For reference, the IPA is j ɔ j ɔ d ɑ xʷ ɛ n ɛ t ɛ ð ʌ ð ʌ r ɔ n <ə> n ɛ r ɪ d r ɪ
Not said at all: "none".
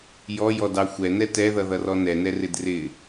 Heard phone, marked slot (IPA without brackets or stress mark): ɛ